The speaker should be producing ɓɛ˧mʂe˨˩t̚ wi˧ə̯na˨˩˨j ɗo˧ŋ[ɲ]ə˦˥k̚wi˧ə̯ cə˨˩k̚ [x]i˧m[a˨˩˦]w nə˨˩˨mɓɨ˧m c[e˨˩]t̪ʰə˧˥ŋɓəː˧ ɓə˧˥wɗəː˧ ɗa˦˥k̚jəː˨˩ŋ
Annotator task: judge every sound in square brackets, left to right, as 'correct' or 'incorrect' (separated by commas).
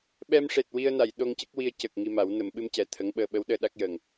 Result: incorrect, incorrect, correct, incorrect